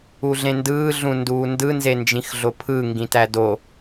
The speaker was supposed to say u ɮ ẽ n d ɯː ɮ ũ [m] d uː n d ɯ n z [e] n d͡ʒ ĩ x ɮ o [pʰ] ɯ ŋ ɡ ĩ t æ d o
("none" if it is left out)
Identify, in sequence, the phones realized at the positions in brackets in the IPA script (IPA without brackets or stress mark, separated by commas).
n, e, pʰ